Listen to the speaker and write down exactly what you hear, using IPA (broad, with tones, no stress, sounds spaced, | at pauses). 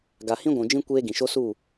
ɡ a˨ h ĩ˦ ɡʷ ũ˨ d͡ʒ ĩ˦ kʷ eː˦ ɡ ĩ˨ ʃ o˦ s u˦˨